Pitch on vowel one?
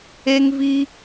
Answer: high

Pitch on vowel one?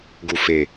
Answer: low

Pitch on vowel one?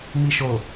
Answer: low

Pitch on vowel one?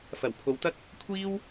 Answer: low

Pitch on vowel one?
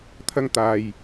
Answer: high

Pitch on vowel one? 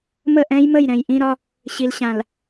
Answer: falling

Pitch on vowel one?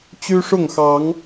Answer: high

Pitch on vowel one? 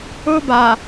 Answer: high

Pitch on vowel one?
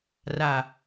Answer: low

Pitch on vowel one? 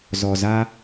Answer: low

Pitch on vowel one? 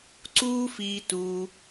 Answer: high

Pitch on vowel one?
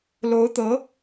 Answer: rising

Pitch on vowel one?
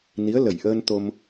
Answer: rising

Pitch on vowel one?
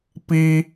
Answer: high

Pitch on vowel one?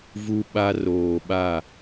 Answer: high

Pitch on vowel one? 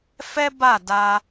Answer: high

